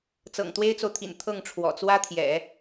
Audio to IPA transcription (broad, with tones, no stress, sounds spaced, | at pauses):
t͡s ɤ̰˨˩ ŋ t̪ w e˥ ɪ̯ t͡s o˨ ʊ̯ t̪ʰ ḭ˨˩ n t̪ʰ ɤ˥˩ ŋ ʈ͡ʂʰ w ɔ̰˨˩ t͡s w ä˥ t̪ʰ j ɛ̰˨˩˦